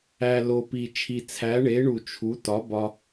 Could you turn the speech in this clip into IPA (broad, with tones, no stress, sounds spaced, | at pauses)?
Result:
æ˨˩ l o˨˩ p i˨˩ t͡ʃʰ i˨˩ t͡sʰ æ˩˥ ɳ e˩˥ ɳ u˨˩ t͡ʃʰ u˩˥ t ɒ˩˥ b ɒ˧